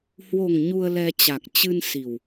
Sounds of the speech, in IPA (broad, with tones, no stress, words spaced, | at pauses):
hwo˨˩ŋ ɲu˧ə̯lɛ˧t͡ɕa˨˩k̚ t͡ɕɨ˧nsi˨˩w